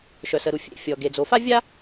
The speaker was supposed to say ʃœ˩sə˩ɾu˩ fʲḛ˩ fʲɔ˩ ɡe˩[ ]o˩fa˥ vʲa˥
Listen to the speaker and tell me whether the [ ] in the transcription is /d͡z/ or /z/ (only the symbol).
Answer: d͡z